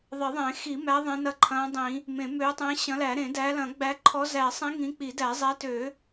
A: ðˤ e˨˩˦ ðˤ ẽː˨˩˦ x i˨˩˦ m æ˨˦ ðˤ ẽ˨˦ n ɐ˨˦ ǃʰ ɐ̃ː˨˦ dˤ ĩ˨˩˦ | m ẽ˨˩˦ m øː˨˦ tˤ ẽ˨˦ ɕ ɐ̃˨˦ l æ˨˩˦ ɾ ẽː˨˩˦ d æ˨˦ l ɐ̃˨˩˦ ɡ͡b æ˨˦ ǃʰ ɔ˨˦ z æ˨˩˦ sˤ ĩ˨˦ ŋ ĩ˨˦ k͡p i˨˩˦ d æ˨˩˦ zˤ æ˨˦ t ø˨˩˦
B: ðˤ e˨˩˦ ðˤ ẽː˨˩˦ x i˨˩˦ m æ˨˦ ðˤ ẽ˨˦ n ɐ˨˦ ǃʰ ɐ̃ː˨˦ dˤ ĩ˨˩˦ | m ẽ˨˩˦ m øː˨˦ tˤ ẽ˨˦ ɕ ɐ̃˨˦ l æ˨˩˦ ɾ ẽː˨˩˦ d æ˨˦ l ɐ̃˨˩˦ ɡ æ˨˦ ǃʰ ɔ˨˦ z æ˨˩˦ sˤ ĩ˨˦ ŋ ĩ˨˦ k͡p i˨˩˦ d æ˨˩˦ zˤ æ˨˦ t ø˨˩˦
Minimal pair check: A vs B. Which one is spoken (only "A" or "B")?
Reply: A